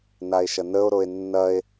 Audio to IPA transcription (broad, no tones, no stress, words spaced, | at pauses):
nae̯ʃɐnəo̯ɾoe̯ nːɐe̯